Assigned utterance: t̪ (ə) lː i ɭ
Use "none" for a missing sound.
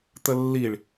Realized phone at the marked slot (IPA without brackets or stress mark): ə